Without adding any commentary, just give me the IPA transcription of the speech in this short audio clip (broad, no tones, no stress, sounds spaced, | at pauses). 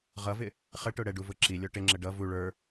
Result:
ʁ ʌ v ɪ | χ ə ʈ ʊ ɽ ɛ ɖ u v ʊ ǁ i lʲ ɔ ʈ ɪ ŋ͡ǁ ə ɖ ʌ v u ɭ ə˞